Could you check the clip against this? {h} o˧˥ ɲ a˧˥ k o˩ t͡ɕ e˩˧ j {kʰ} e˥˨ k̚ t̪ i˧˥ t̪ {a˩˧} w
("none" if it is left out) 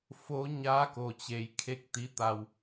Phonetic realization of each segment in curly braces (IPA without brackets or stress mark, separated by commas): f, kʰ, a˧